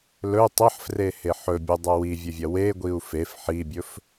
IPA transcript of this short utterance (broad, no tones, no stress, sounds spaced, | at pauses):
l ɵ y̯ tˤ ɐ ħ f r e h e ħ ɵ bʲ ɵ dˤ ɐ w i vʲ ɵ vʲ ɐ w e ɡʷ i u̯ f e f ħ i bʲ ɵ f